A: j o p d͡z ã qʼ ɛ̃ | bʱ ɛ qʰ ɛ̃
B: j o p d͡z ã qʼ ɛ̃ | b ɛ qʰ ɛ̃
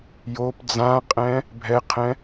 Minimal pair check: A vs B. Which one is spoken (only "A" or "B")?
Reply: A